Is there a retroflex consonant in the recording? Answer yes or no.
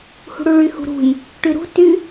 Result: yes